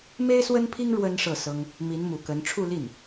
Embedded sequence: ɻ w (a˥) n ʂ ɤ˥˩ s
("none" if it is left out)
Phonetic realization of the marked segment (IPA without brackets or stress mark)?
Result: ə˥